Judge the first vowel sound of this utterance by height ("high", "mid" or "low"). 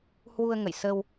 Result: high